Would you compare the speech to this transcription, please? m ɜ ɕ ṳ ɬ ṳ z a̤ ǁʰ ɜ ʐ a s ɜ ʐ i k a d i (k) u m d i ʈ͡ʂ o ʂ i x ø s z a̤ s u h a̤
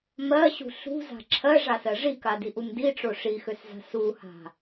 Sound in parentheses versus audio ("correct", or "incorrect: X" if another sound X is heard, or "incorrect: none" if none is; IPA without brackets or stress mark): incorrect: ʔ